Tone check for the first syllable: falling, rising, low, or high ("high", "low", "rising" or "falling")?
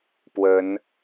rising